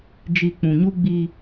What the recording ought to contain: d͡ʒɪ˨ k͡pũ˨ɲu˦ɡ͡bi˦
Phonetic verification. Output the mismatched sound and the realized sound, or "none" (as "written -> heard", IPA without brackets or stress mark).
ɪ˨ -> i˨